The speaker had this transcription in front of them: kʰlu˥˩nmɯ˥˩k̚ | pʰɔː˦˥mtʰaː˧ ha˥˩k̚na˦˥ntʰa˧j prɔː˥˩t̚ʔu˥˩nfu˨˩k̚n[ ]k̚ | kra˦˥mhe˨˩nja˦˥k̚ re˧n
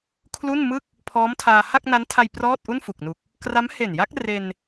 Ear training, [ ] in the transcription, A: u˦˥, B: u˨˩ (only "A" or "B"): B